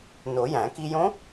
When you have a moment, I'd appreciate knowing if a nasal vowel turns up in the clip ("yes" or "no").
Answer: yes